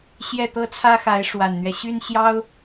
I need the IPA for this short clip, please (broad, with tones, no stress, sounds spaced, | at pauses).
ɕ j ɛ˥˩ t̪ ɤ˥ t͡sʰ ä˥ x a˧˥ ɪ̯ ʂ w a˨˩ n n̪ ɥ ɛ˦ ɕ y˥ n ɕ j ɑ˥ ʊ̯